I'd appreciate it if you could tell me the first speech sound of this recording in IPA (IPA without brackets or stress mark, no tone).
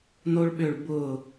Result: n